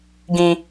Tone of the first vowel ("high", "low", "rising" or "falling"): high